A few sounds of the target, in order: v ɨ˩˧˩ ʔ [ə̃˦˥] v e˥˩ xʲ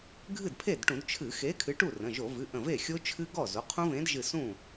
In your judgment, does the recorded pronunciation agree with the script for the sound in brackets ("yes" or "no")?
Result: no